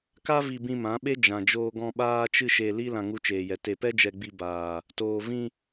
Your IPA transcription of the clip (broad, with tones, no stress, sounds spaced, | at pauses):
k a˦ v i˧ b ĩ˧ m ã˨˦ ɓ e˦ d͡ʒ ã˨ d͡ʒ oː˧ ɡ ɔ̃˧ ɓ aː˦ t͡ʃ ɨ˦ ʃ e˧ l i˦ l ã˧ ŋ u˧ t͡ʃ eː˨ j ɛ˨ t e˨ p ɛ˦ d͡ʒ ɛ˧ ɡ͡b i˧ b aː˨ | t oː˨ v ĩ˧